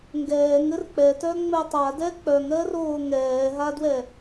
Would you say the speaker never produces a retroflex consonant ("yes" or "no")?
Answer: yes